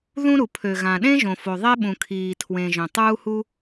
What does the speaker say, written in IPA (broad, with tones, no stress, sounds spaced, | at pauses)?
ð ũ˥ ɾ u˩ pʰ ø˩ ɣ ã˩ ɗ ẽ˥ ʒ õ˩ f o˩ ðˤ e˥ ɓ ũ˩ kʰ iː˩ tʰ w ẽ˩ ʒ œ̃˩ tˤ uː˥ h u˥